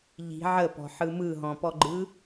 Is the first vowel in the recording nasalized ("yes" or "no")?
no